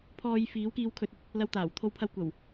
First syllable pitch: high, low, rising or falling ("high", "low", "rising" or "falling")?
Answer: low